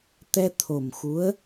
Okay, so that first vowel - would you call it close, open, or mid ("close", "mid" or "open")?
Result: mid